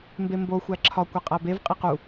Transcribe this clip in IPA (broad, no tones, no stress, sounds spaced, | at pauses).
m b e m b o xʷ æ ǁʰ ɒ kʷ e qʼ æ b e v qʼ i q u